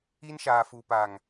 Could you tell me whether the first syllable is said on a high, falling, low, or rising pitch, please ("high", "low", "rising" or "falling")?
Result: high